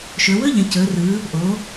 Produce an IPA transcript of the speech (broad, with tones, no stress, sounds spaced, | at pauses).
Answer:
ʃ ɵ˩˧ w ɵ˥ ʎ ə̃˩˧ c ɵ˩˧ r ɯ˩˧ | ʔ o˩˧